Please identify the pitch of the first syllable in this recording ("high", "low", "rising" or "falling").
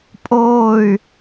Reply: falling